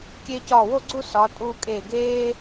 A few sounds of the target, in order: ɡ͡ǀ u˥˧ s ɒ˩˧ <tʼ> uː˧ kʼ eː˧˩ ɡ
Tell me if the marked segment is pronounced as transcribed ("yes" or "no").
yes